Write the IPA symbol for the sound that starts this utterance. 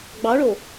ɡ͡b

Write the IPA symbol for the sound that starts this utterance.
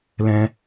l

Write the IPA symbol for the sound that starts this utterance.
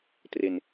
t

